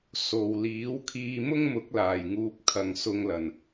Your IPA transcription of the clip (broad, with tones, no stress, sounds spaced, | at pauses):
s o˨ w l iː˨˥ w kʰ iː˧ m ʊ˥ ŋ m ʊ˨˥ k̚ l aː˨˩ j ŋ uː˨ p̚ kʰ ɐ˨ ŋ s ʊ˧ ŋ l ɐ˨˩ n